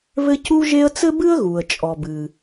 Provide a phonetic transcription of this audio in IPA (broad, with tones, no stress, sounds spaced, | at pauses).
β ɘ˥ c u˥ ʒ e˥ ə̯ t͡s ɘ˥ b ɨ˥ ə̯ ɣ u˩ ə̯ t͡ʃʼ ɔ˩ b ɨ˩